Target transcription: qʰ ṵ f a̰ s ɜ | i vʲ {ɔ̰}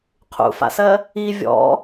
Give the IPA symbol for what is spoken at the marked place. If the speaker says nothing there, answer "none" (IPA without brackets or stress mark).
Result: ɔ̰